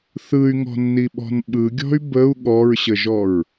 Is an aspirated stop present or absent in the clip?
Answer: absent